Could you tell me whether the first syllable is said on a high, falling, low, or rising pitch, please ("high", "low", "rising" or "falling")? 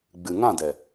low